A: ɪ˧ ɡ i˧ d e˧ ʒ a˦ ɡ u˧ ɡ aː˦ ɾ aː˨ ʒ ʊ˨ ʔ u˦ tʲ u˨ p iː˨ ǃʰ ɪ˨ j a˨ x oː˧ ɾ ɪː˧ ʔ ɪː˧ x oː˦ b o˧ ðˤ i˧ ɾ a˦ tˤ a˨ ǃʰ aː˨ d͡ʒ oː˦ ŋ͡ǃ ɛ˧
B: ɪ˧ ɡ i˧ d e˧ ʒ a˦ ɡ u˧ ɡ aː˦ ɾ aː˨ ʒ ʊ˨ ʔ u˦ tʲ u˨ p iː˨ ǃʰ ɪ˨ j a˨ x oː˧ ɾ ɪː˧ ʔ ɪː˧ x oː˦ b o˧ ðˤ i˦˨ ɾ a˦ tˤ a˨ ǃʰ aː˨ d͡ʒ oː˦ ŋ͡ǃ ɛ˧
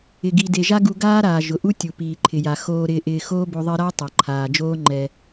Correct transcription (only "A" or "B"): A